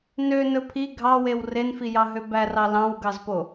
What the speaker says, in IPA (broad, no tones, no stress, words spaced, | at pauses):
nø nɵpʰi ɡʱɑwew renfi jɑɦøbærɑ lɑ̃wɡɑzpo